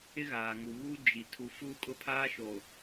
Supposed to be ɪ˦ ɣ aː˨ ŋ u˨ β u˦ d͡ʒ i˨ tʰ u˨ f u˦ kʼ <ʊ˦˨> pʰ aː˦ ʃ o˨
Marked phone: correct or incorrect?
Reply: incorrect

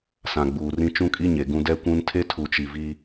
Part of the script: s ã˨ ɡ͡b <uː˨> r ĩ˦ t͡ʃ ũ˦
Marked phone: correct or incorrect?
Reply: correct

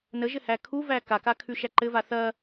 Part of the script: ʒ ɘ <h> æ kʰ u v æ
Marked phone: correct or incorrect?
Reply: correct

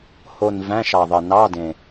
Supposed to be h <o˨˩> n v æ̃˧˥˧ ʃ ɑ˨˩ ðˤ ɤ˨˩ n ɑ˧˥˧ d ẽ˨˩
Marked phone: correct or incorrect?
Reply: correct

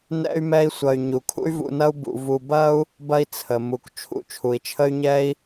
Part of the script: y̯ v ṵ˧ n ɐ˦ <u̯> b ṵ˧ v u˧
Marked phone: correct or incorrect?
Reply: correct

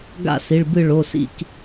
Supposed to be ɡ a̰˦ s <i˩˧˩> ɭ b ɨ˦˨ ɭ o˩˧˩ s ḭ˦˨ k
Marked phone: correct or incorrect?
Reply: correct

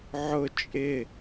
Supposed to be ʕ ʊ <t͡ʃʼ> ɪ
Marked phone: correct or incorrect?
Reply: correct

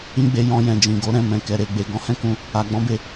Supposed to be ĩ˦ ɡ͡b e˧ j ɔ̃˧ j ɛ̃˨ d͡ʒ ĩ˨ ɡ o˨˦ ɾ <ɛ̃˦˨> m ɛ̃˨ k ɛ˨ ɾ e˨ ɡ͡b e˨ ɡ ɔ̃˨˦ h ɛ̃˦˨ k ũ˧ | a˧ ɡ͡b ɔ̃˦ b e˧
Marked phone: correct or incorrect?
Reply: correct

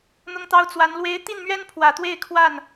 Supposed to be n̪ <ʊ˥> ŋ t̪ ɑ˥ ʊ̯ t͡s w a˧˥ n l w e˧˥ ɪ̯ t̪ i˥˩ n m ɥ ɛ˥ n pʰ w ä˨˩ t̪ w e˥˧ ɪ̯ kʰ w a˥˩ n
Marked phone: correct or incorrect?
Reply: correct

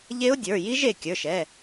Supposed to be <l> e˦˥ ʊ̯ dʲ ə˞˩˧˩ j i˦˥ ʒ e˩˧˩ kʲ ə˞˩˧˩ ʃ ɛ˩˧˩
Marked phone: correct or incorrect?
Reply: incorrect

